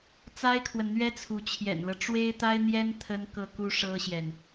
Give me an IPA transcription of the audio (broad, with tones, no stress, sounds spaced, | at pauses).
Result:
t͡s a˥ ɪ̯ kʰ w ə˨ n n̪ ɥ ɛ˥ t͡sʰ u˧˥ t͡ɕʰ j ɛ̰˨˩ n l ɤ˦ ʈ͡ʂ w e˥ ɪ̯ t̪ a˥ ɪ̯ n̪ j ɛ˥ n t̪ʰ ə˥ n k ɤ˥˩ k u˥ ʂ ɤ˥ ɕ j ɛ˨ n